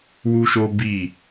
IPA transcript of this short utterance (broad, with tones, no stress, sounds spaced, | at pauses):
w u˦ ʃ o˦ b i˦˨